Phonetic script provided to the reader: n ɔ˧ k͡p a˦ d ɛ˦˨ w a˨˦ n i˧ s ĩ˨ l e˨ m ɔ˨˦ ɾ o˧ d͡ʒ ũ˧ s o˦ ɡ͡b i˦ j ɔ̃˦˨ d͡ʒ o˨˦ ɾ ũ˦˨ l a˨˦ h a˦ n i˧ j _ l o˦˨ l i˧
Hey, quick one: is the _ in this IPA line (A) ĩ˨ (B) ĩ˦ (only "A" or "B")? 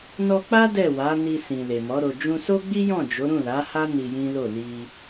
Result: B